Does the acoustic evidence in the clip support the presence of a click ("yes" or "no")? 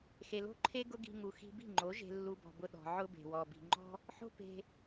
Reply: yes